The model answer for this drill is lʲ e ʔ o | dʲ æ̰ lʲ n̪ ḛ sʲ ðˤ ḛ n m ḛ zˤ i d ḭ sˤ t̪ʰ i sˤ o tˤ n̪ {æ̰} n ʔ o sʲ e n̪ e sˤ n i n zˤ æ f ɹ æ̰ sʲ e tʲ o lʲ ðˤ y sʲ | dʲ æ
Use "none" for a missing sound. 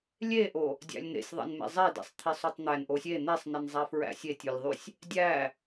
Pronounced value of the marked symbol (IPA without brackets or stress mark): æ